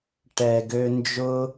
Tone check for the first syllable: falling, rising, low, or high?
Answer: low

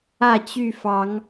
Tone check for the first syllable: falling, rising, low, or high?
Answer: falling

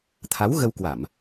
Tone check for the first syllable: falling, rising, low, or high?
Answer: rising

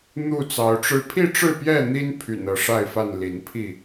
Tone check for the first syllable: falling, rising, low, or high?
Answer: falling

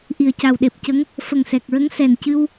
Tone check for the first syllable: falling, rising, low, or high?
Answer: low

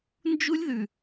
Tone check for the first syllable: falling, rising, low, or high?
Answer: high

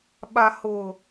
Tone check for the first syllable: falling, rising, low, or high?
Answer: low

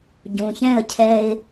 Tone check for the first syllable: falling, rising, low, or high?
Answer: low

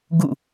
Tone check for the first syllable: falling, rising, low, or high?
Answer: falling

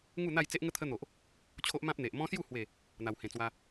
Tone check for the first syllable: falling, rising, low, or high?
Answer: falling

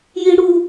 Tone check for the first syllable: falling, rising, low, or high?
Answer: high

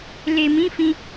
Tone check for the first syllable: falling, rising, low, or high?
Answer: low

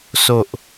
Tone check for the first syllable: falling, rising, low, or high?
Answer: low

